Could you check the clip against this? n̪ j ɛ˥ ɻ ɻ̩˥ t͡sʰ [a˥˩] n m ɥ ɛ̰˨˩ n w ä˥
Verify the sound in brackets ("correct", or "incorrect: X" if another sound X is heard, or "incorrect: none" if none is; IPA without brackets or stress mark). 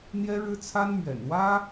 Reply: incorrect: a˥